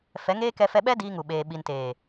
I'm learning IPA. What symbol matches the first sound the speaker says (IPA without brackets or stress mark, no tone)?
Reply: f